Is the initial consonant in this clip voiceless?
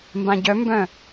no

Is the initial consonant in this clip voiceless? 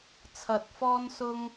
yes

